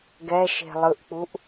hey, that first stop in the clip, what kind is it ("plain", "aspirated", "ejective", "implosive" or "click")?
plain